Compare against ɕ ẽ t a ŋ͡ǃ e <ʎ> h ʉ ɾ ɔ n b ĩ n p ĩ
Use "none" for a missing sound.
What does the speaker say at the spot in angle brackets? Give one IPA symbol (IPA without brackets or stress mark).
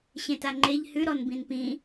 ʎ